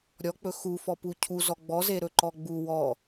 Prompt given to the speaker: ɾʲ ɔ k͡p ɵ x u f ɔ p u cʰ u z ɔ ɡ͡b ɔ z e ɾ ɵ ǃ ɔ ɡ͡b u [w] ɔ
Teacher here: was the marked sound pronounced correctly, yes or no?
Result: yes